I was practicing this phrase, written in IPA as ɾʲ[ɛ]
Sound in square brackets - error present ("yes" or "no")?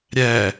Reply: no